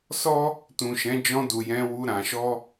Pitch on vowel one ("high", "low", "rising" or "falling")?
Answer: high